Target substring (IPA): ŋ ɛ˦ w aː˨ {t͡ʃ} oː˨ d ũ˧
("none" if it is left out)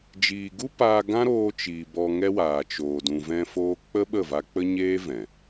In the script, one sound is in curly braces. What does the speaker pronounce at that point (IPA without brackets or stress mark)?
t͡ʃ